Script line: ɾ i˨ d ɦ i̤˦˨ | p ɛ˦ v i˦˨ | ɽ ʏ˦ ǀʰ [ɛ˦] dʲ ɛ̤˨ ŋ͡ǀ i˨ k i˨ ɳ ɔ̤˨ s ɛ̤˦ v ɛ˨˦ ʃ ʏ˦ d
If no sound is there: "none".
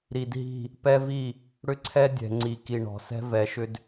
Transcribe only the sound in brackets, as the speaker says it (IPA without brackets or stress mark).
ɛ˦